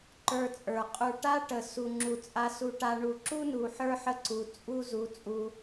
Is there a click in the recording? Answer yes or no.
yes